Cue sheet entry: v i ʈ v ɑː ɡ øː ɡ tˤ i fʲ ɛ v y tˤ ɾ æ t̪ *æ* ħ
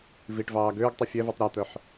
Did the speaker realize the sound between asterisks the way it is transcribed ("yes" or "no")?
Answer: no